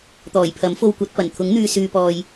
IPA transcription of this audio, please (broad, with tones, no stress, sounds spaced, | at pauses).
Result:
t̪ ɔː˨˩ j pʰ ɐ˨˥ m f o˧ w kʷ ɐ˨˥ t̚ p ɐ˨˩ n t̪ʰ ʊ˨˥ ŋ n̪ yː˨ s yː˨ p ɔː˨ j